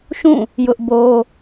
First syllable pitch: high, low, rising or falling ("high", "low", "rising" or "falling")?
falling